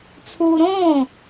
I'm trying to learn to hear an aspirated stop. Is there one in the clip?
yes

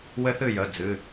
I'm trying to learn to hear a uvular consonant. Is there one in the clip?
no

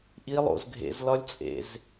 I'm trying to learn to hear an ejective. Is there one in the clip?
yes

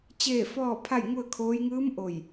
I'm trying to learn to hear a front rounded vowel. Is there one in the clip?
no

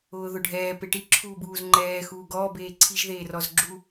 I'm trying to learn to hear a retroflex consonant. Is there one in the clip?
yes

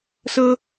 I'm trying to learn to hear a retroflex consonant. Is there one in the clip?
no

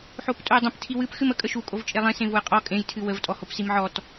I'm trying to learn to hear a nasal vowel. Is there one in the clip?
yes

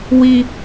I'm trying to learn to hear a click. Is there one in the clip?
no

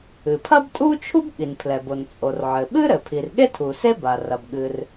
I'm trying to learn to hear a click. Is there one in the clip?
no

